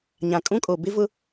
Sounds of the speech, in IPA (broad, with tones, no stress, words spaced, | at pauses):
ɲã˨kʼũ˦kʼo˨ bɪ˦vʊ˦